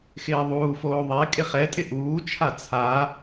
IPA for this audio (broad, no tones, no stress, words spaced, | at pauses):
xɪːðˤuːfoː ðˤe kʼɪχɛtʼɪ ʔuːt͡ʃʰa t͡sʰa